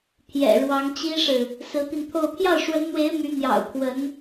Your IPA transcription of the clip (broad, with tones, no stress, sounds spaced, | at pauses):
pʰ j ɛ̰˨˩ ɻ w ɑ˧˥ ŋ t͡ɕ i˥ ʂ ɻ̩˨ | s ɹ̩˧˥ t̪ i˧ n t̪ʰ o˥˧ ʊ̯ pʰ j ɑ˥˩ ʊ̯ ʂ w ə˧˥ n n̪ w e˧˥ ɪ̯ m y˧˥ n̪ j ɑ̰˨˩ ʊ̯ pʰ w ə˧˥ n